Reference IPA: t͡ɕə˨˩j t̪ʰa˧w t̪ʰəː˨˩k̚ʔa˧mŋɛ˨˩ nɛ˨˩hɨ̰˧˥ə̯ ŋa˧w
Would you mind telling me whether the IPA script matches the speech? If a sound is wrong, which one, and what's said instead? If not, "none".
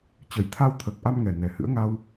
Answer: none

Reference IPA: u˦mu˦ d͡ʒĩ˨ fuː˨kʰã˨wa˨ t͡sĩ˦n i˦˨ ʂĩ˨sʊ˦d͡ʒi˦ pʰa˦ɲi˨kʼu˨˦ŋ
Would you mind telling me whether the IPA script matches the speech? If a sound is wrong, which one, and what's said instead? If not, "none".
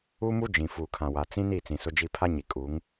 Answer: ʂ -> t͡s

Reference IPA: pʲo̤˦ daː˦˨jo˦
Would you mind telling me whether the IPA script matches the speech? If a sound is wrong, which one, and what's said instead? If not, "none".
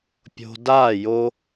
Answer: none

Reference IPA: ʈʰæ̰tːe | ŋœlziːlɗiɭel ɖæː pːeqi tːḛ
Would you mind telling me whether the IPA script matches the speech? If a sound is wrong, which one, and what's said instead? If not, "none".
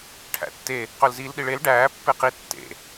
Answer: ŋ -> q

